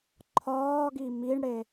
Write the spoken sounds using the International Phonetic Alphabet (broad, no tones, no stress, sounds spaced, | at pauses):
ǃʰ ɒː ɡ i m i ɳ ɽ e